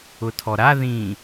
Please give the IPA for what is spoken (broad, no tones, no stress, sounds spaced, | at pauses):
ʊ tʰ ɔ ɾ a ð ĩ